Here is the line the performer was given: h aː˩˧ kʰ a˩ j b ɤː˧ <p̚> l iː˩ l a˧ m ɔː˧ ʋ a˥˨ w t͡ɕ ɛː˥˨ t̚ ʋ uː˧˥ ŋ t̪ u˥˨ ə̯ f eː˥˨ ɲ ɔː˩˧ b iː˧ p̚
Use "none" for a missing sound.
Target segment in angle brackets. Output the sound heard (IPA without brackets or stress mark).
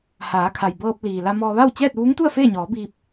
p̚